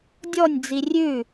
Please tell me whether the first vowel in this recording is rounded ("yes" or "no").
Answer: yes